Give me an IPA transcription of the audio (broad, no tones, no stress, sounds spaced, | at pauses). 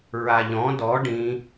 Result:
ɹ a ʎ ɔ̃ d ɔ ɖ ĩ